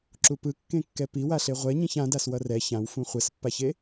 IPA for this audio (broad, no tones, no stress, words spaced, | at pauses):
ǁupɯ kːẽkːɛpiwa ɬeʁʷɛɲĩç ãdaswʌ rɛ çãwfũ χʷɛspːaçe